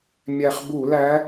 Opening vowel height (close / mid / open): open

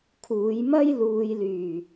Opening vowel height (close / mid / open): close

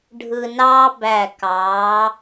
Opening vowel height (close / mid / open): close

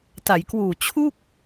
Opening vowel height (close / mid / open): open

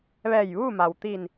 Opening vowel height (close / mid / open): mid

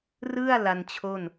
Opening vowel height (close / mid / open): close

